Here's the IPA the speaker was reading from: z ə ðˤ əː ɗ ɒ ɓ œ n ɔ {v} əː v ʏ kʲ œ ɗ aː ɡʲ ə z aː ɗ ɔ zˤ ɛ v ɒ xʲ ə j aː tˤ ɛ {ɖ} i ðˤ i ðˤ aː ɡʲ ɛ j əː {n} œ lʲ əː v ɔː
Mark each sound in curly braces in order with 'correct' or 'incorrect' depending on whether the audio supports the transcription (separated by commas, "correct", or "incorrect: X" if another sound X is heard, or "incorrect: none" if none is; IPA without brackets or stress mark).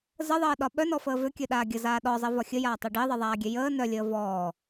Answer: incorrect: f, correct, correct